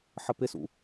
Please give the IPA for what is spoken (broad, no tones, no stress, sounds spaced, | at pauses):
ħ ə p ɪ s ṵ